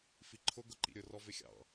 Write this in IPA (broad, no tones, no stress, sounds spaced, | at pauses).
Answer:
f i ǃʰ ʊ ɡ ʊ ǃ ḭ ɾʲ ʊ r ɔ v ɪ xʲ ɑ̰